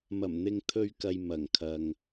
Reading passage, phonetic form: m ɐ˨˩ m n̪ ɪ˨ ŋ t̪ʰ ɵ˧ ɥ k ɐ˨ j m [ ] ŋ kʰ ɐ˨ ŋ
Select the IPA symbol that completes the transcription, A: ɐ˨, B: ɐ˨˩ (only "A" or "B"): B